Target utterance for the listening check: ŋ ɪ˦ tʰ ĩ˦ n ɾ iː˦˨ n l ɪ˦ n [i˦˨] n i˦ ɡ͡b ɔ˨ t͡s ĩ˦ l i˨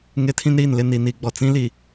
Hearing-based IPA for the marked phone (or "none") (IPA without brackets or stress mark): i˨